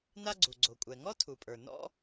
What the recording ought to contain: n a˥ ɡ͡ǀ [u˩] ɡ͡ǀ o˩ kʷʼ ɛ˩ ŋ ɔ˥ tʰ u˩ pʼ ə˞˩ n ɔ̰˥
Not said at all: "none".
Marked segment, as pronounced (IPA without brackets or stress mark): u˩